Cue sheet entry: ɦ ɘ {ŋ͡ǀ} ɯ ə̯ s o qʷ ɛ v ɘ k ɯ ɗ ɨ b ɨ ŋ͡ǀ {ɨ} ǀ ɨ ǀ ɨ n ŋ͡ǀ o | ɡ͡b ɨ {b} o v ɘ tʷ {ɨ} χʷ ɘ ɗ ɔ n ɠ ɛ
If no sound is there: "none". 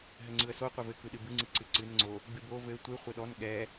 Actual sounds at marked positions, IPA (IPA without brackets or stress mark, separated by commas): ŋ͡ǀ, ɨ, b, ɨ